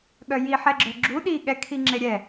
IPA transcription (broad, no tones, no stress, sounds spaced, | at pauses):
ɠ œ j i ħ ɛ ɡ͡ǁ œ ɡ͡ǁ u ɗ i ɠ ɛ kʰ i ŋ͡ǁ e ɾʲ ɛ